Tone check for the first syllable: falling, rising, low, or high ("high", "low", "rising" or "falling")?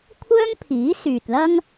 high